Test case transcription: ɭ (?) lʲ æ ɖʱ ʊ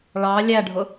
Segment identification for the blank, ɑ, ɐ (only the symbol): ɑ